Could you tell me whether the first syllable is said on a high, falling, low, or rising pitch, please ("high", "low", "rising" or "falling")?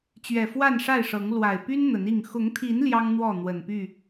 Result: low